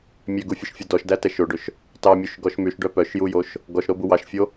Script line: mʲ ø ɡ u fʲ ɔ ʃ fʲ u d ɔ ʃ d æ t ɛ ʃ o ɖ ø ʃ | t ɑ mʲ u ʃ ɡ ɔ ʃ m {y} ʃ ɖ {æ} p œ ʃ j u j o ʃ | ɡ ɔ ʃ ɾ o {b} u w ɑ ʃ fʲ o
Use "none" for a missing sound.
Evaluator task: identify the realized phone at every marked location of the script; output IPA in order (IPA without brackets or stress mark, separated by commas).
y, œ, b